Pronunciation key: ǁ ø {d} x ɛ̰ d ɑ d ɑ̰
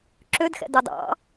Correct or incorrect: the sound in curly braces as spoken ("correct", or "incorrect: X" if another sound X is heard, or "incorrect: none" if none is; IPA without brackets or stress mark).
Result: correct